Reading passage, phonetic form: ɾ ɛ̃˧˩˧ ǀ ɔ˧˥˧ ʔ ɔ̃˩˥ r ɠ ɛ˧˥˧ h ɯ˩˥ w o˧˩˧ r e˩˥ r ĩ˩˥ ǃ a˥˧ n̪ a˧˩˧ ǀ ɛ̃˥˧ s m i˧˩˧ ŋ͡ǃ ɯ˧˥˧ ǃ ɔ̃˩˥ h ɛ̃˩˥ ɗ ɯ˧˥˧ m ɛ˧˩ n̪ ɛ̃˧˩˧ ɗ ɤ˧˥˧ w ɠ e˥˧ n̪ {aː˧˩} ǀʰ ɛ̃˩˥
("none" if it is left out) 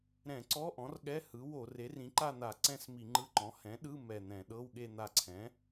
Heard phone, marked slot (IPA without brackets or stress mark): a˧˩